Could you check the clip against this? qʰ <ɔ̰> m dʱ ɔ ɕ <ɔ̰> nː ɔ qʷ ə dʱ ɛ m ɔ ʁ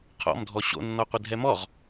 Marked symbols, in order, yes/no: yes, no

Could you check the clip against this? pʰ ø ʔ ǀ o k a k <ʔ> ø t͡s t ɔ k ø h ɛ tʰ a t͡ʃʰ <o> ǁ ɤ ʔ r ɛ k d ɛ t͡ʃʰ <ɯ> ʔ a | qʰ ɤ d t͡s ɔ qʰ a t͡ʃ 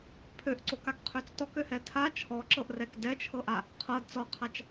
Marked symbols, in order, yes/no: no, no, no

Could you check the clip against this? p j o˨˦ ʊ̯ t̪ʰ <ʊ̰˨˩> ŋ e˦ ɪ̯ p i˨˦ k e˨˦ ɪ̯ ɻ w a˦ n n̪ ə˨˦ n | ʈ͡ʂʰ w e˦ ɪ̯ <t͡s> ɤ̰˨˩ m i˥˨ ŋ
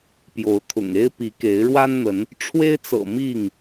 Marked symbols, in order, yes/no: yes, yes

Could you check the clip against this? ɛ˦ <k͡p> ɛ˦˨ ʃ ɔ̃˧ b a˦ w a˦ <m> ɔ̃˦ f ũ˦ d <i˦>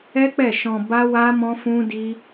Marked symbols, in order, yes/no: yes, yes, yes

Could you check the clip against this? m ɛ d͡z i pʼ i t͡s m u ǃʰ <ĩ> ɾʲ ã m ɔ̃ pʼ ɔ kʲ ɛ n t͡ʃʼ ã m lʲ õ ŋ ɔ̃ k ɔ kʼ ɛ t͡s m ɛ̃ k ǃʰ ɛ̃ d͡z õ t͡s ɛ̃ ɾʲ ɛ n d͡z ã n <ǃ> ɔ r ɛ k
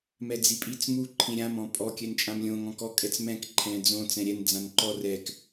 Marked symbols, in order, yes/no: yes, yes

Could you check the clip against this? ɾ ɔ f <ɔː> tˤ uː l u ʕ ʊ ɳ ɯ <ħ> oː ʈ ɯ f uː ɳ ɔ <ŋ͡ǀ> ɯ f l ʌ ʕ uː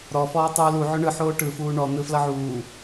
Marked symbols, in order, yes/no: yes, yes, no

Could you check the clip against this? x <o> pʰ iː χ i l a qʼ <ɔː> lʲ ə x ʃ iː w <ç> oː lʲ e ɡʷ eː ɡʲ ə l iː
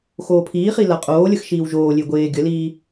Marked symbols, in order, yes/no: no, no, no

